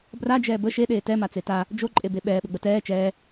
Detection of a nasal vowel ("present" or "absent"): absent